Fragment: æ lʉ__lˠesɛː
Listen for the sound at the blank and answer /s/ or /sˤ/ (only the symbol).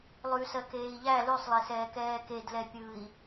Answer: sˤ